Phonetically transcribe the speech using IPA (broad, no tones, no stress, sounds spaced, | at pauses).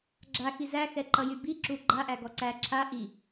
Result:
ɡ͡ǁ a x i z æ x ɛ ǃ ʌ j y b i ǁ u ɡ͡ǃ a ʔ æ ɡ ɔ ǀ æ ǁʰ a ʔ i